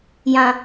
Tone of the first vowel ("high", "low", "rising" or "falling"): low